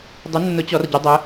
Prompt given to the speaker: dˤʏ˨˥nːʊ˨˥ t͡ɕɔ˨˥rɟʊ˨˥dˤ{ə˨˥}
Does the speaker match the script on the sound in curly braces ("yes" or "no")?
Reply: yes